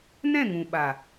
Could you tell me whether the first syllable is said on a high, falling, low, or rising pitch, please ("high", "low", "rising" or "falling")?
falling